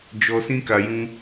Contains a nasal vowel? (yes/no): yes